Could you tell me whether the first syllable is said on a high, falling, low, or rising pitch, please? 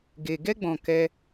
low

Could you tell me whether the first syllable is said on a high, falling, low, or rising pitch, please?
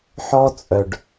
high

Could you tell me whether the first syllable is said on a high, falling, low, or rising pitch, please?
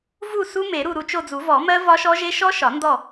falling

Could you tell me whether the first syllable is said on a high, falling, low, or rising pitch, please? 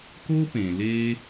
high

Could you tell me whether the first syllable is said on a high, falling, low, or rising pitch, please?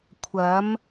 rising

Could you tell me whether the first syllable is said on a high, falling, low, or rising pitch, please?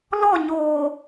falling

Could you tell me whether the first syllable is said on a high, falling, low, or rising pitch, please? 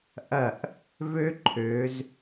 falling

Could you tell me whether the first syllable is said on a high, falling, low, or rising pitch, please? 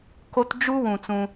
high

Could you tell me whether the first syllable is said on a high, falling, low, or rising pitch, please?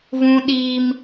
high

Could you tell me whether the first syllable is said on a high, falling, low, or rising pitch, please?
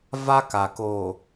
high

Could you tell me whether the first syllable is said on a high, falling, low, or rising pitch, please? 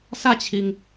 falling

